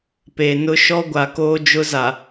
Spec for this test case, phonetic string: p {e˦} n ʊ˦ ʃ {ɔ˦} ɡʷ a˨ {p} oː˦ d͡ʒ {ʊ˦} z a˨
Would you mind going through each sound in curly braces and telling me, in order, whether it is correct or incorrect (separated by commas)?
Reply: incorrect, correct, incorrect, correct